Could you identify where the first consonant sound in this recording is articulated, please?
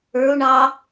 retroflex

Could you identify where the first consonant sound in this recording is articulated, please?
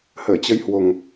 glottal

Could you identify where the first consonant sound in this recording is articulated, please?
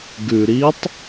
velar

